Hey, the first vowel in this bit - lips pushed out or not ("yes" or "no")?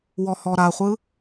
yes